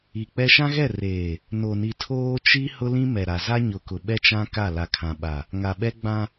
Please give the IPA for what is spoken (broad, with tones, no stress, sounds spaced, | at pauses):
i˨ k͡p ɛ˦ ʃ ã˦ ɣ ɛ˦˨ r eː˨ | n o˨ n i˨ tʰ oː˦ t͡ʃ i˦ h ʊ˦ l ĩ˦ m ɛ˨ ɾ a˨ z a˦ ɲ ʊ˨ k ʊ˨ ɓ ɛ˦ t͡ʃ ã˦ k a˦˨ l a˨ kʰ ã˨ ɓ a˨ | ŋ a˨ ɓ ɛ˦ ɡ͡b ã˦